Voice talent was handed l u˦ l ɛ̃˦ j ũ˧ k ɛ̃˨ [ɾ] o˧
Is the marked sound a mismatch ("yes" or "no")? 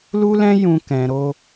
no